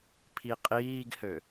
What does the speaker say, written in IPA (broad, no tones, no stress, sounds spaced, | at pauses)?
pʰ i qʼ iː ɡ h ø